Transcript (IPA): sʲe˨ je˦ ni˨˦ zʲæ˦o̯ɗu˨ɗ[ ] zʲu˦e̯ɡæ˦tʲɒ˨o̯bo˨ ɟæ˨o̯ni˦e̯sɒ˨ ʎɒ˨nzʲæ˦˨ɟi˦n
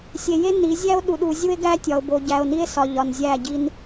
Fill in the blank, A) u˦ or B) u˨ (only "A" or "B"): B